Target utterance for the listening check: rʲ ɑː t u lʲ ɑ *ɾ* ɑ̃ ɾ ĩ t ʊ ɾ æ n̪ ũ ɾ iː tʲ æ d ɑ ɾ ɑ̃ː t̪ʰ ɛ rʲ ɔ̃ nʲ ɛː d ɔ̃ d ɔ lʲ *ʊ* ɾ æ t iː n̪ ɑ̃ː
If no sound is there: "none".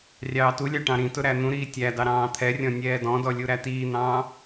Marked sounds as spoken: ʈ, u

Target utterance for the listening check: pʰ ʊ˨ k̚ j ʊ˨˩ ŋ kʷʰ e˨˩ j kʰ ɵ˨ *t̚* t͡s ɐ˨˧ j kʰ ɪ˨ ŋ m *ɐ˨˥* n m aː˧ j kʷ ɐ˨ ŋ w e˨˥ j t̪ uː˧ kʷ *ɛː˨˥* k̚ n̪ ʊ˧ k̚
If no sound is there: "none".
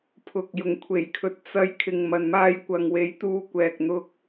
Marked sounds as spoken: t̚, ɐ˨, ɛː˨

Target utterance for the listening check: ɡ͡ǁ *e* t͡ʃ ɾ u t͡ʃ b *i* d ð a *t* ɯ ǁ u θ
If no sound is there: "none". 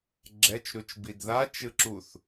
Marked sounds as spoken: ɛ, i, t͡ʃ

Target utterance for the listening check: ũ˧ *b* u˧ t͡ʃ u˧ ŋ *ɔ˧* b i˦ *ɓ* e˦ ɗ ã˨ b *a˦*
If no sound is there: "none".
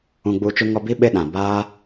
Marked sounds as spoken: ɡ͡b, ɔ˧, ɓ, a˦

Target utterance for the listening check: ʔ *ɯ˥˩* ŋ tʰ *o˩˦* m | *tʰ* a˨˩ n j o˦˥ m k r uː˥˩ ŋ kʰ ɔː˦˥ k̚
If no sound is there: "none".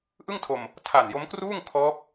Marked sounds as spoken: ɯ˥˩, o˧, tʰ

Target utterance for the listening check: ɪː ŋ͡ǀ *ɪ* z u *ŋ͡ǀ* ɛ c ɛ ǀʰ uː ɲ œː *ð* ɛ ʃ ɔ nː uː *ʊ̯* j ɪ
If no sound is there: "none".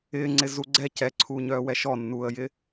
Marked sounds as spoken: ɪ, ɡ͡ǀ, w, ə̯

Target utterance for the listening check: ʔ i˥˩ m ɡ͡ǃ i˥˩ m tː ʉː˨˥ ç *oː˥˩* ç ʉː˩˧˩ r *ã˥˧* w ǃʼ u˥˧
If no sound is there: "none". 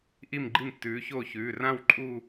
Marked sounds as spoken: oː˥˩, ã˥˧

